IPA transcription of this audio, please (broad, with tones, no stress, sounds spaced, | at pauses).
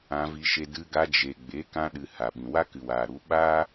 ã˧ v i˧ ʃ e˧ d ɨ˧ ɡ a˧ d͡ʒ e˨ ɡ͡b e˨˦ k ã˧ ɗ ɨ˨ h a˨ ɓ ĩ˨ w a˦ k ɨ˨ w aː˨ ɾ u˨˦ ɓ aː˦